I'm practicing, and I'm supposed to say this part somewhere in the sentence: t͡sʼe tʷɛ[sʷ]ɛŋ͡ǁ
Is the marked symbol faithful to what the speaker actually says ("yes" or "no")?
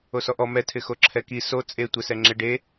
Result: no